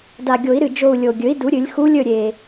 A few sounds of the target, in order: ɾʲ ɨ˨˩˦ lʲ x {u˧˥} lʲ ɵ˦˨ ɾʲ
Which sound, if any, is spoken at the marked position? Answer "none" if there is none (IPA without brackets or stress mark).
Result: u˧˥